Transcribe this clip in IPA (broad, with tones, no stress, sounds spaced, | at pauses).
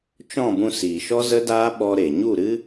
t͡ʃ ɔ̃˦˨ b ũ˧ s iː˨ ʃ ɔ˦ z ə˦ d aː˦ ɓ ɔ˧ ɾ e˨ ɲ u˦˨ ɾ ɨ˦